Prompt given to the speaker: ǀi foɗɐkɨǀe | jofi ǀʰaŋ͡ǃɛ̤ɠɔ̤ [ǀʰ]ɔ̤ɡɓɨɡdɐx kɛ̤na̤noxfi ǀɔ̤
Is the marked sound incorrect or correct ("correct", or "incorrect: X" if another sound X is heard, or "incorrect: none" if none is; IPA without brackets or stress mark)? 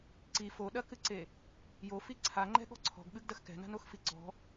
correct